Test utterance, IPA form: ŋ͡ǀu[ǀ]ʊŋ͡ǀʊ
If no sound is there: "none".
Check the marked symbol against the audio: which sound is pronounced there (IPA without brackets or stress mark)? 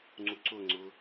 ǀ